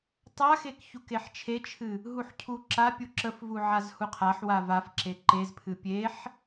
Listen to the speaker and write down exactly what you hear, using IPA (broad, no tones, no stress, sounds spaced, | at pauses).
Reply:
tˤ a x e k ç u k e ħ t͡ʃʰ e t͡ʃʰ ɨ | ɦ u ħ cʰ u ǁ a pʲ u ǁ ə f v u ʕ a z h u qʰ a ħ w a v a f ǁ e ǃ e z pʰ ɨ pʲ e ħ